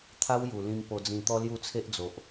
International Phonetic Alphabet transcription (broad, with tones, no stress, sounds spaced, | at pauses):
t̪ʰ a˦ w j u˨˩ l ĩ˧ m p o˧ d͡z ĩ˧ t̪ ɔ˦ l j u˥˧ t͡sʰ e˦ ʔ d͡z o˨ ʔ